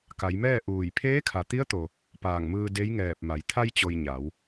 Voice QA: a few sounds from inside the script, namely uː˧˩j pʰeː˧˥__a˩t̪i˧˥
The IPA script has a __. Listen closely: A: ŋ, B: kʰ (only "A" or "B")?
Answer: B